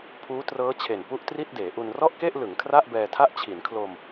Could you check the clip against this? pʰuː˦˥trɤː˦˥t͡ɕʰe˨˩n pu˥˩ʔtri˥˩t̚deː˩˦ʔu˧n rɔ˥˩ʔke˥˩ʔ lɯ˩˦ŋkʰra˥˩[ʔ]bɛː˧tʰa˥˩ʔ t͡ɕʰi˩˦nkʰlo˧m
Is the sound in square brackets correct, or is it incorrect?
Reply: correct